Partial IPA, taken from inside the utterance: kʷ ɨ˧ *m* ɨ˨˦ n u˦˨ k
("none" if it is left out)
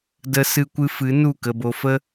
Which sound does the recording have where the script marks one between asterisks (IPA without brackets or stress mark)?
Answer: f